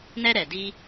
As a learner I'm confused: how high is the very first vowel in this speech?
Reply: mid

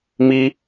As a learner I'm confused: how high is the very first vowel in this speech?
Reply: high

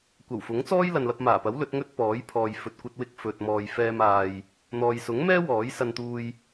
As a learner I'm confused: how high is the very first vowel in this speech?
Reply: low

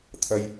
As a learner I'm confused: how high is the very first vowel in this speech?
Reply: low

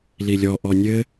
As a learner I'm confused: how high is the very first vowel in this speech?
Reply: high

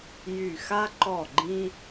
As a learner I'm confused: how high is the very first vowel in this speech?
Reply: high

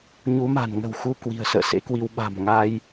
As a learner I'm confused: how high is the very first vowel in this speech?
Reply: high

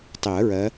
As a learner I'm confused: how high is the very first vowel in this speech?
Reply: high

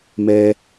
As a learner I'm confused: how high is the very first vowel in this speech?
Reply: mid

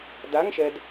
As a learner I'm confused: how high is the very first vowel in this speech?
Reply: low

